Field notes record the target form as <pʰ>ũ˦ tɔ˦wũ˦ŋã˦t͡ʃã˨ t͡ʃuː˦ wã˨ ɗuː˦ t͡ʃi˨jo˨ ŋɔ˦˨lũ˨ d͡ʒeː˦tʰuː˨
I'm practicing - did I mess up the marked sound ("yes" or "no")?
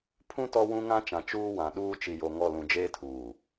no